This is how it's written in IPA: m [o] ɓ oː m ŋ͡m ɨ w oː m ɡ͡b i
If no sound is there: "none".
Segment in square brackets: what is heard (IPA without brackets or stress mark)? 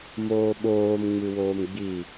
oː